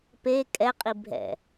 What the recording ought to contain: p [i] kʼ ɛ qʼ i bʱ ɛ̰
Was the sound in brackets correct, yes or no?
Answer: no